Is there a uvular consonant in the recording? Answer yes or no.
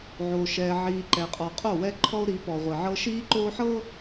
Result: yes